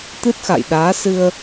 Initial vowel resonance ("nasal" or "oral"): oral